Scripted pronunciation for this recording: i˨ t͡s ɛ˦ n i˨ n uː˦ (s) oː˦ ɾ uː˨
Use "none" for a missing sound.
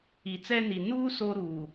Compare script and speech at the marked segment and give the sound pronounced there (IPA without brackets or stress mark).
s